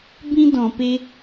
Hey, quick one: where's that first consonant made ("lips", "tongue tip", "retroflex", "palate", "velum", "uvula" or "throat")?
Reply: lips